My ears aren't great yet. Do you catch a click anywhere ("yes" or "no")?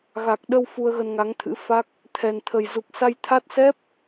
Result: no